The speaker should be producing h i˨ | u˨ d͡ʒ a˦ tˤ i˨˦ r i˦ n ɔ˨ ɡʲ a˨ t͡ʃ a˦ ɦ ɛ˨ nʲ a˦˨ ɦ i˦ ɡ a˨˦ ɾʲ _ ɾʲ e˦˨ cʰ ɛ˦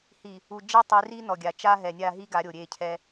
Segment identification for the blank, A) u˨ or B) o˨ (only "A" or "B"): B